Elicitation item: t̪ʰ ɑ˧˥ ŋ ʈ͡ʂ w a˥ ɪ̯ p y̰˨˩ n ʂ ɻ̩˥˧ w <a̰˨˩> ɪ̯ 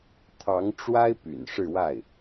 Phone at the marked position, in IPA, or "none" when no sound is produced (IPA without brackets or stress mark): a˥˩